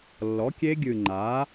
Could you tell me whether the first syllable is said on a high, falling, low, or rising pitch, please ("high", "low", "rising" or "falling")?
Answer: rising